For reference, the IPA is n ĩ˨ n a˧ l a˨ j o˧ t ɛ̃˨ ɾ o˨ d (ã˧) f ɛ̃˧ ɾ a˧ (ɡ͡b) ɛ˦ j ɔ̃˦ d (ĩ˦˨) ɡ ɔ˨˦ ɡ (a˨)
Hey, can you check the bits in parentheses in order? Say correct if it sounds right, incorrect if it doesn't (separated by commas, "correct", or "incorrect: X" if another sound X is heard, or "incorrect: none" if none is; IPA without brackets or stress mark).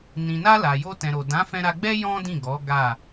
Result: incorrect: ã˨˦, correct, correct, incorrect: a˦˨